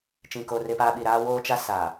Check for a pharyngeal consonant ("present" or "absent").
absent